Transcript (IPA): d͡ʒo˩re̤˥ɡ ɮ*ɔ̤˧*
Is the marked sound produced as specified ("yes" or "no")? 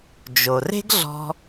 yes